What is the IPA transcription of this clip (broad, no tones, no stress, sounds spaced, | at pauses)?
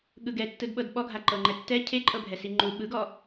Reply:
ɠ ɯ ɡ ɛ tː ɯ d ɓ ɤ d ɓ ɔ ɡʱ a ǃ ɤ ŋ͡ǃ ɛ tː ɛ cʰ e ǃʼ ɤ bʱ ɛ s i ŋ͡ǃ u ɓ ɯ ɡ ɔ